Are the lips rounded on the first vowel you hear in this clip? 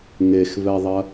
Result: no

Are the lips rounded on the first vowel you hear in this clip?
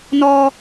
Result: yes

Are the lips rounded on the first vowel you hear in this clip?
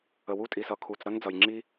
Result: no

